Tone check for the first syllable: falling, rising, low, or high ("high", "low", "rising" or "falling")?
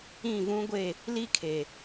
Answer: falling